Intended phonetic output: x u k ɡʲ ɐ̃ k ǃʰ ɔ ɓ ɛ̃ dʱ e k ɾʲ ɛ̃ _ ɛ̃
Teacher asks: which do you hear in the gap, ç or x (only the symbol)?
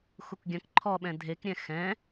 x